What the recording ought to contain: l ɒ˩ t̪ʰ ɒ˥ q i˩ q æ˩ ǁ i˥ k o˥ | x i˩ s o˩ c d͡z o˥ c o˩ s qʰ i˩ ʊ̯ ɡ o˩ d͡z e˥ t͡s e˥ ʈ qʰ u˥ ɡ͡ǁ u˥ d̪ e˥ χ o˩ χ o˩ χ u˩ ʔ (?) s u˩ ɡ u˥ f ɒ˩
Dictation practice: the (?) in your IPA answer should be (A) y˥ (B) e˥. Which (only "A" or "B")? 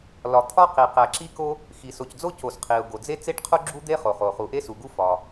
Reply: B